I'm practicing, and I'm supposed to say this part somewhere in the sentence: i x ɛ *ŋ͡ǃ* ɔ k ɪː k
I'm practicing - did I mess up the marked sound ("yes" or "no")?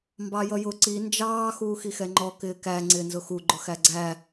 no